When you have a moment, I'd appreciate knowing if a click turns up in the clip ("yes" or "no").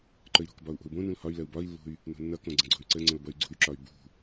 yes